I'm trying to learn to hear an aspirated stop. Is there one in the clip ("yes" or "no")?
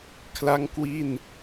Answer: yes